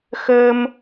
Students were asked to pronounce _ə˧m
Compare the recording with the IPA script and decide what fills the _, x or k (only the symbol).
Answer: x